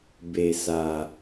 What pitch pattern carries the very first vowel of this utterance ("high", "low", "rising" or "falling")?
low